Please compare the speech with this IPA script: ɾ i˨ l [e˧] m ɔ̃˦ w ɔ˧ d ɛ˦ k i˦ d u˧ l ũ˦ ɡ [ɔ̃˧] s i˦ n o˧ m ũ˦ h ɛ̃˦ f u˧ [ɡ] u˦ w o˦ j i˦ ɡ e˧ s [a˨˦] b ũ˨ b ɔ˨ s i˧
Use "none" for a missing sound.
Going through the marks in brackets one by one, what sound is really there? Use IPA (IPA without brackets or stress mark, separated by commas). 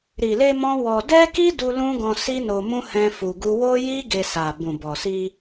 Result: e˧, ɔ̃˧, ɡ, a˨